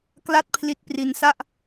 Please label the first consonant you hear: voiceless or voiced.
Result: voiceless